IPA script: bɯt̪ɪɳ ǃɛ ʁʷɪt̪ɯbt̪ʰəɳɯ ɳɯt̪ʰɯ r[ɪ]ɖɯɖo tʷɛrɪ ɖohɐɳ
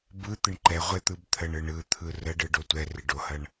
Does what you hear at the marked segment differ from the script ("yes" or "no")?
yes